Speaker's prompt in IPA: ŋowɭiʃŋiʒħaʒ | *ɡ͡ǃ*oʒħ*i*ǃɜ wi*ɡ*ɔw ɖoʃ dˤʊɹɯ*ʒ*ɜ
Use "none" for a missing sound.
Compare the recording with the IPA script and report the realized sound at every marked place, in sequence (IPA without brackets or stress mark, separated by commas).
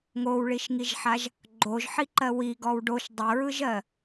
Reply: ɡ͡ǃ, i, ɡ, ʒ